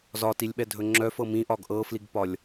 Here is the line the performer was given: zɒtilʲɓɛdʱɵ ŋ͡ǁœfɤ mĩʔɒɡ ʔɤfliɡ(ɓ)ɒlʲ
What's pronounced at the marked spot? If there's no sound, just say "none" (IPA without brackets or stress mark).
p